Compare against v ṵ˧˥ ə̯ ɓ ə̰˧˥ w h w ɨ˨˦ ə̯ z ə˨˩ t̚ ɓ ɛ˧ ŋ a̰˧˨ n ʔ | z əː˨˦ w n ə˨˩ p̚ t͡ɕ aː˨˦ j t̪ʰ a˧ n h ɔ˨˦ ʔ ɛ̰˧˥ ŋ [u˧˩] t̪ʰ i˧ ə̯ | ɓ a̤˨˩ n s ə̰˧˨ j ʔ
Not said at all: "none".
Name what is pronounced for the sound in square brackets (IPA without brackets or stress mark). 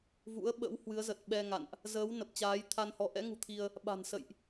ṳ˨˩